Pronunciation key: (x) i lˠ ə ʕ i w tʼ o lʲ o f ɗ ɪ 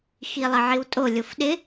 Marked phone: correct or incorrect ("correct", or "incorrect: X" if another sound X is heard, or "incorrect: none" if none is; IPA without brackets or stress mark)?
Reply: correct